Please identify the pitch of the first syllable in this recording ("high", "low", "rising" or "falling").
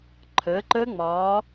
rising